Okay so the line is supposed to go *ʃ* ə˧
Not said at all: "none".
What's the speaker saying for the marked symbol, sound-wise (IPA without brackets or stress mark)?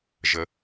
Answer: ʒ